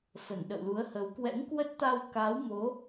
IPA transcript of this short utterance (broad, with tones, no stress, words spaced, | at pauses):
fə˧˩nɗə̰˧˨wlu˨˦ə̯hə˨˦w kwɛ̰˧˥ŋkwə˦˥t̚t̪a˧w ka˨˦wmo˨˦